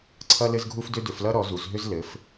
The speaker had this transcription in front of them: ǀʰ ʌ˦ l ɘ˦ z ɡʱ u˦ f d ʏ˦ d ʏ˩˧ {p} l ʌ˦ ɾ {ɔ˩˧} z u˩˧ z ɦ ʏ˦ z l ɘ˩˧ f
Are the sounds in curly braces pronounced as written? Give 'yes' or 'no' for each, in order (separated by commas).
no, yes